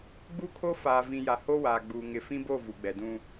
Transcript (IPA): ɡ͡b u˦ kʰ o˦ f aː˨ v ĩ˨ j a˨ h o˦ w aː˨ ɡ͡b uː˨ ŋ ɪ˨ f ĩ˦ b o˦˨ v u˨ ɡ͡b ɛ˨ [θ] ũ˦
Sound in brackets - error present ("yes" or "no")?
yes